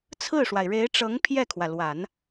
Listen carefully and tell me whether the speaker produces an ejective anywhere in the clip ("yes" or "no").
no